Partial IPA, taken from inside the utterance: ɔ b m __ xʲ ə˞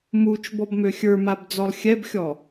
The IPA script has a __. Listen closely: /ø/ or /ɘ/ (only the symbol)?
ø